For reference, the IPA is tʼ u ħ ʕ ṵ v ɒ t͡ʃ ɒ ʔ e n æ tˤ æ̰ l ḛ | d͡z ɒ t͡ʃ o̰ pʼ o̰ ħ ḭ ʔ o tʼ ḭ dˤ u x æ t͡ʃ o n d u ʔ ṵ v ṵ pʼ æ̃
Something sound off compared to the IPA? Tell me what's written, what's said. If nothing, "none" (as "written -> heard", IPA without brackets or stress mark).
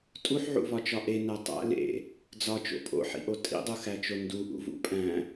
none